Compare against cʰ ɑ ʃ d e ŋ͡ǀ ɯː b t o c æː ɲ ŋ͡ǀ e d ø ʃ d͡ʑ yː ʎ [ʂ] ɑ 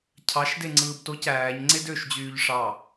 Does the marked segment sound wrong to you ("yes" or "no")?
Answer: no